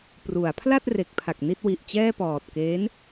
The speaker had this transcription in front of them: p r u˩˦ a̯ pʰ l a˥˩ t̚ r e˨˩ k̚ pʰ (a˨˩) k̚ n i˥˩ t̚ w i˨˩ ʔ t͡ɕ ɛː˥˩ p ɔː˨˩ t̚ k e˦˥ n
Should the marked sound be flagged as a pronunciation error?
no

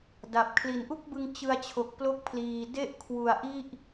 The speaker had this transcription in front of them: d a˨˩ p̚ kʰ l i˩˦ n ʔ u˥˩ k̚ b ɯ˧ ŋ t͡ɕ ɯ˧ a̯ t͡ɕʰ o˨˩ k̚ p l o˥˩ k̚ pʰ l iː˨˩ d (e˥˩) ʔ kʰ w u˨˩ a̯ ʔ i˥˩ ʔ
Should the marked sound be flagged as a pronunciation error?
no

